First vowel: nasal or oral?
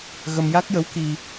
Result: oral